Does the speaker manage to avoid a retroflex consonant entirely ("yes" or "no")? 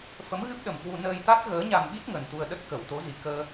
yes